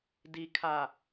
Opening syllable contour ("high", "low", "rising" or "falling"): low